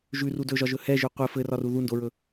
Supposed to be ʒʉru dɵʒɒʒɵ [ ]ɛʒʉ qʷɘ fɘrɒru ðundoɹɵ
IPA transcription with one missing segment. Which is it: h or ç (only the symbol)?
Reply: h